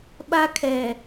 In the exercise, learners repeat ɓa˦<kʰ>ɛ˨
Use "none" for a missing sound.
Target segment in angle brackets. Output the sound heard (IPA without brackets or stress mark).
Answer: kʰ